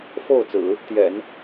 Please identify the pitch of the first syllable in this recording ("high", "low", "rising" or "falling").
falling